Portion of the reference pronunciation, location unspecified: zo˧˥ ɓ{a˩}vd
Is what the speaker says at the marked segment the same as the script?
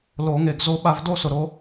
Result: no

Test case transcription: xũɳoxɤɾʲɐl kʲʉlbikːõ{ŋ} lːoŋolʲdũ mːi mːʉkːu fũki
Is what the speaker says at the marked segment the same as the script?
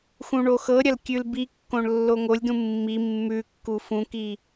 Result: no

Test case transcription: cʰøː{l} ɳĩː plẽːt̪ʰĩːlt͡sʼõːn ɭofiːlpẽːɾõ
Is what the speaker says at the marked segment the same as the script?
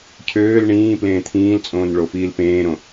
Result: yes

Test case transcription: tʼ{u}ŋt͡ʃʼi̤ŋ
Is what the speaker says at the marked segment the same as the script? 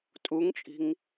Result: yes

